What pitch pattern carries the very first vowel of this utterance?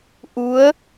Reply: rising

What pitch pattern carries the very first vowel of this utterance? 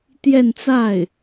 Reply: falling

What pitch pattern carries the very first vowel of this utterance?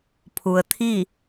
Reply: low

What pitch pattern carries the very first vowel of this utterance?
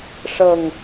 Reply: low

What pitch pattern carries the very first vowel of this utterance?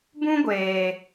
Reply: high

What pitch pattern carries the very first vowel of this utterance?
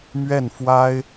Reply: falling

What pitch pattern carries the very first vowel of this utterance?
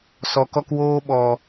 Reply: low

